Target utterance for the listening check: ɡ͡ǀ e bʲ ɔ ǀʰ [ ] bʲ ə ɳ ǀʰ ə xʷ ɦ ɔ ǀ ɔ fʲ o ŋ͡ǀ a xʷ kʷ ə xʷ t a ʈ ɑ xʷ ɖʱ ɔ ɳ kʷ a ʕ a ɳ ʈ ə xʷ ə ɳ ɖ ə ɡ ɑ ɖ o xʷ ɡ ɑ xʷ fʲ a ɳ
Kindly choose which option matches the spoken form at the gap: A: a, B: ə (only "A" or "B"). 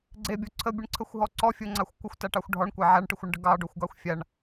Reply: B